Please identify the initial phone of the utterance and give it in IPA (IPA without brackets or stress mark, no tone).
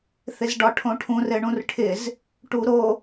θ